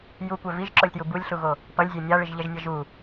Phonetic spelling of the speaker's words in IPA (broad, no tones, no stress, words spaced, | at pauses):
jukʷɛ viʒǁolʲtju bulʲɬuɣo | pʌlʲzʲe nʲaɭiʒʎɛʒnʲʌ ʒu